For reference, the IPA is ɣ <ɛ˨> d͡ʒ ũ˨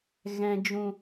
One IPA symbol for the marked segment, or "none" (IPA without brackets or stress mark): ɛ̃˨